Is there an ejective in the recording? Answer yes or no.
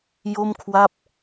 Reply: no